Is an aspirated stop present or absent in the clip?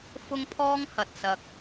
present